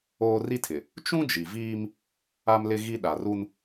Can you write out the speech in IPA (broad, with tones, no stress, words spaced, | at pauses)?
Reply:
oː˦ ri˦tʰɪ˨ | t͡ʃũ˦ d͡ʒi˨viː˦m | a˦mlɪ˦ ɣi˦ ɗa˨ru˦n